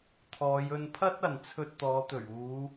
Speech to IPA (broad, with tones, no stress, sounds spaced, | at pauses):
t̪ʰ ɔː˨˧ j ɵ˧ n pʰ ɐ˥ t̚ ɐ˨ n t͡sʰ ɵ˧ t̚ t̪ ɔː˨˧ t̪ ɵ˨˩ ɥ uː˨˧